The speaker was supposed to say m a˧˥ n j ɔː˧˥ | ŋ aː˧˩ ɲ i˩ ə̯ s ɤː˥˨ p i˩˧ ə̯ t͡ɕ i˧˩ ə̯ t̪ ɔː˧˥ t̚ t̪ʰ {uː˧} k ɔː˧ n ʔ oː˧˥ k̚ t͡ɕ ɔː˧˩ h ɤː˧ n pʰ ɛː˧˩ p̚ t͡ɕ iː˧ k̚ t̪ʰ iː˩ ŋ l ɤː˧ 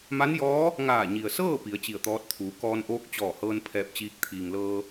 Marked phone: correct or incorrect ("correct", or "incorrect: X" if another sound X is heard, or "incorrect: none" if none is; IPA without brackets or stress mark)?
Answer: incorrect: uː˩˧